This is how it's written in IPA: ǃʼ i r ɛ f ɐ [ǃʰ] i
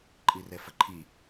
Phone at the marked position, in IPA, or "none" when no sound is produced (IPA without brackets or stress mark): ǃʰ